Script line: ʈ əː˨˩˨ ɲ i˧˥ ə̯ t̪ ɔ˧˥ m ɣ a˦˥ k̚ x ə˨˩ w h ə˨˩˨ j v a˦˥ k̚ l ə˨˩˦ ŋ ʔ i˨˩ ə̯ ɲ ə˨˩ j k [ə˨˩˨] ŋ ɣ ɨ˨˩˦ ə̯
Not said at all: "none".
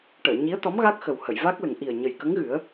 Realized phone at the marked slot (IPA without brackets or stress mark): ə˧˥